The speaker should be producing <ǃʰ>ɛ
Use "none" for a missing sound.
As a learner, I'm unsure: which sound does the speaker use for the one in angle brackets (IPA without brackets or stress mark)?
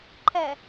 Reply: ǃʰ